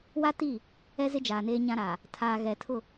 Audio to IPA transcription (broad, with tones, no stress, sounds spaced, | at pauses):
w a˦ t i˦˨ | ɛ˦ z ɪ˦ d͡ʒ aː˨ n eː˦ ɲ ã˦ ɾ aː˨ | tʰ aː˨ ɣ ɛ˨ tʰ ʊ˦˨